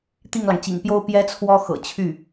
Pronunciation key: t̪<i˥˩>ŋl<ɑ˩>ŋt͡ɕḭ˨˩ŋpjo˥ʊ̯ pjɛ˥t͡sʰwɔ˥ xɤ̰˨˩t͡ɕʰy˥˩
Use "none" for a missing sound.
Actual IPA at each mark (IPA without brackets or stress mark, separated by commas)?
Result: i˥˩, ɑ˩